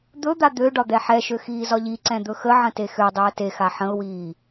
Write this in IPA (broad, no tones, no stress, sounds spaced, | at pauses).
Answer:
d̪ ɵ d̪ a d̪ ø ɖ ɒ d̪ ɛ ħ ɛ ʃ ø x iː z ɒ ʎ i ǀ ɛ̃ d̪ ɵ x ə ʕ ə̃ t e x ø dˤ ø ə̯ t e x a ħ ə̃ ʊ̯ w iː